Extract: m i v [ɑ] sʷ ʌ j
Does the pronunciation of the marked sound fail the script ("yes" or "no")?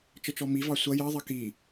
no